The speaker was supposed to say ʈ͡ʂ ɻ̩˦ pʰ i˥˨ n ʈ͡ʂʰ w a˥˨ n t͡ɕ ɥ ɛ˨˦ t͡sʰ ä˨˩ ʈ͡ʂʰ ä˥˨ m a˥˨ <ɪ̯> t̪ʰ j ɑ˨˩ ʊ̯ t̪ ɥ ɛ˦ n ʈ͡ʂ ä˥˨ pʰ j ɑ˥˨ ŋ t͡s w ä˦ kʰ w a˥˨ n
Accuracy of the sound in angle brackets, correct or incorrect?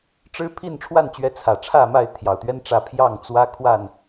correct